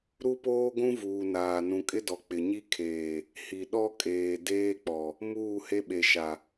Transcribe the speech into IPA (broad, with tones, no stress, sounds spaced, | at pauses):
ɾ u˦ p oː˦ ɡʷ ũ˦ v uː˨ n aː˨ n ũ˨ kʼ ɪ˦ d ɔ˨ k͡p ɪ˨ ɲ i˦ kʰ eː˨ | h i˨ ɗ ɔ˦ kʼ eː˨ d eː˦ k͡p ɔ˨ | m uː˦˨ h e˦ ɓ e˨ ʃ a˨